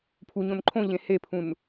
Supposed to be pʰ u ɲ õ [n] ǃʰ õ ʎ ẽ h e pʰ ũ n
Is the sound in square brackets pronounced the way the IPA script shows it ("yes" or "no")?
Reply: yes